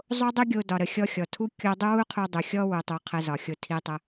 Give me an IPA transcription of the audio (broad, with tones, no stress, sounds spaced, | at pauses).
zˤ o˦ dˤ u˦ ɡʲ o˧ d ɒ˨ ɾ ə˨ xʲ ɔ˧ xʲ ɔ˨ tʰ u˦ kʲ o˦ dˤ u˦ w u˦ qʰ u˧ dˤ u˨ xʲ ɔ˦ w u˨ tˤ u˨ qʰ ə˧ z ɒ˨ xʲ o˧ tʰ i˧ tˤ ə˧